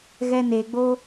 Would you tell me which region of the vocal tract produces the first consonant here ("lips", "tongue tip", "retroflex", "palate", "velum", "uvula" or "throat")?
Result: velum